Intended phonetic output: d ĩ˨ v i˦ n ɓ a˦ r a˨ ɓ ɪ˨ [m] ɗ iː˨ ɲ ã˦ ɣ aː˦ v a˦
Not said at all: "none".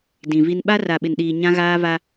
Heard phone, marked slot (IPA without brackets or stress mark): n